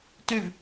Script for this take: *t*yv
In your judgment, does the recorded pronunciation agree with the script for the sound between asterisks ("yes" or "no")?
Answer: yes